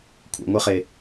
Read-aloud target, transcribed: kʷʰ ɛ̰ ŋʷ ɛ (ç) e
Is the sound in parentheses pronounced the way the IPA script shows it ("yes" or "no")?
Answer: no